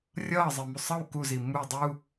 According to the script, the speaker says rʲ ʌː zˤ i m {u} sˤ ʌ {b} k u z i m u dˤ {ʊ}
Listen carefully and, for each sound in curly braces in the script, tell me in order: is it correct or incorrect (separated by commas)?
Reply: correct, incorrect, incorrect